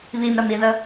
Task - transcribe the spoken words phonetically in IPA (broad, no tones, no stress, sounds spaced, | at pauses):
β i m ɾ ə m i ð ə